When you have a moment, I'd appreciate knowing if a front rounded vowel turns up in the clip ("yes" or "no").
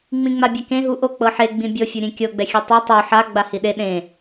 no